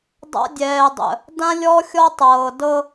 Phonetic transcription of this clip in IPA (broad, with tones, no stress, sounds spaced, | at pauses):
dˤ a̰˦ dʲ ɛː˨ dˤ ə̰˨ | d ã˦ lʲ ɔ˦ xʲ ɔ˦ tˤ ɤː˨ d ɤ˦